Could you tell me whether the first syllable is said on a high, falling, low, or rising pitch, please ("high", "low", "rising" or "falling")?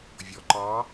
low